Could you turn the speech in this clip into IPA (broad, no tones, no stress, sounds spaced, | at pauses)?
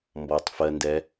m b ɔ tˤ f ɜ n d ɛ